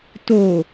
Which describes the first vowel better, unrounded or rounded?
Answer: rounded